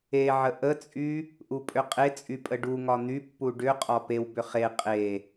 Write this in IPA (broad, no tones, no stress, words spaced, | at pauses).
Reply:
eʕə ʔət͡sʼy | ʔupʼʏqʼet͡sʼy pʼəɖuŋɒ n̪ypːu ɖʏqʼɒ pewbʏ χe qʼe